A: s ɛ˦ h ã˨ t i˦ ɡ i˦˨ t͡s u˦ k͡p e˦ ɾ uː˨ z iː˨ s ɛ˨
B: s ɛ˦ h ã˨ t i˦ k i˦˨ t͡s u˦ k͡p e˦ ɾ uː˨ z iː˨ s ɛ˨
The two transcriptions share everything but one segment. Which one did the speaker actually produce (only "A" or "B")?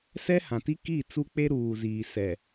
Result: B